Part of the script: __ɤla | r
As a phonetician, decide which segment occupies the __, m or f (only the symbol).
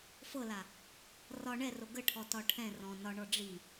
f